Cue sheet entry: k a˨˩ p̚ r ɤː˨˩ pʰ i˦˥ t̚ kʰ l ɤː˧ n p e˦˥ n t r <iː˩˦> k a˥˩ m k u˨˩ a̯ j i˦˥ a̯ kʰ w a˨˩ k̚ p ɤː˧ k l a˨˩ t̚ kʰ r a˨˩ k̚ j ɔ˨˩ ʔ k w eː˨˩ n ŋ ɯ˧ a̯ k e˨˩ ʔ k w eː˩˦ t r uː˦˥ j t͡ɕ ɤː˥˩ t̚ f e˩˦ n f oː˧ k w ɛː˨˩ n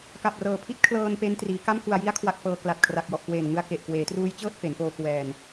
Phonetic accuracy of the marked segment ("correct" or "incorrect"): correct